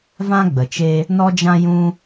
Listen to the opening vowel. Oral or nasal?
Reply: nasal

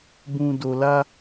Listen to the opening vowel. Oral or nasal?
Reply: nasal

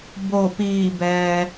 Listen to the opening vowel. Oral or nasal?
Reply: oral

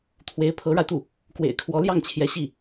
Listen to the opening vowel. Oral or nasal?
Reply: oral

